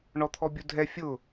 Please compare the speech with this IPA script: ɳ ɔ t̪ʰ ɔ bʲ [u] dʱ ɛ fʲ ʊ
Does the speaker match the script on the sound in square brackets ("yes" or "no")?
yes